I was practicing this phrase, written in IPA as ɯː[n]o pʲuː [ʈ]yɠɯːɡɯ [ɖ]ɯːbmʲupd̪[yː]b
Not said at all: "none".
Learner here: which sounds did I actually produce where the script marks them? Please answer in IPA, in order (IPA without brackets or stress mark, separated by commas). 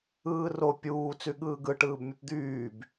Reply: r, t͡s, ʈ, yː